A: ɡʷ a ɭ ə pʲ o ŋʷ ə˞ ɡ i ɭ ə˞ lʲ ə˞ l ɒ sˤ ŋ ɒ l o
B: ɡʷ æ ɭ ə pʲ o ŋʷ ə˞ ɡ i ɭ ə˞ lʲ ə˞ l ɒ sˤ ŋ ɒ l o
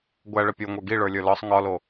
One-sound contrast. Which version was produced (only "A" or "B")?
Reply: B